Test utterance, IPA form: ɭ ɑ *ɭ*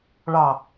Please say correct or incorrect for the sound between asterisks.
incorrect